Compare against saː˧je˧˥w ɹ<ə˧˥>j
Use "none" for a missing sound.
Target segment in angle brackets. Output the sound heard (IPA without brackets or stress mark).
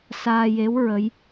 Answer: ə˧˥